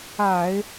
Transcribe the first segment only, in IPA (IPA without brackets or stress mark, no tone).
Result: a